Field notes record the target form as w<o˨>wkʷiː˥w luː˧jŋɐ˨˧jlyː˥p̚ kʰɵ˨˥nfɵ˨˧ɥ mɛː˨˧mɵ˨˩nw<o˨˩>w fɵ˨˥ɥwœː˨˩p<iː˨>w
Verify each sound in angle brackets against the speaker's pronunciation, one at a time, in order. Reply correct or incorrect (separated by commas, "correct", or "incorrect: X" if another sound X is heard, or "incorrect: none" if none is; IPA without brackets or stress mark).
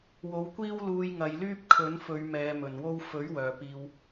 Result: correct, incorrect: o˥, correct